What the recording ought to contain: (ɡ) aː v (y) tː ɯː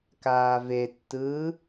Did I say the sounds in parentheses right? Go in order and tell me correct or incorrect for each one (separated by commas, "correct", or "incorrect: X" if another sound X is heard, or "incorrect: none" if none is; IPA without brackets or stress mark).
incorrect: k, incorrect: e